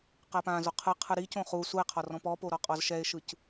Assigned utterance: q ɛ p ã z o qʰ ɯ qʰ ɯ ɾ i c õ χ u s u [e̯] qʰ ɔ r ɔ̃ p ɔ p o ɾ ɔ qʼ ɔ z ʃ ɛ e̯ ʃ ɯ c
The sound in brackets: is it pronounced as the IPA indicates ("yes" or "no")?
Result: yes